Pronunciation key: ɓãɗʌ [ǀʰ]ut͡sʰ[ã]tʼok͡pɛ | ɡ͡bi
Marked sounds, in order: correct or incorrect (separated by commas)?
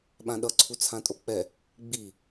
correct, correct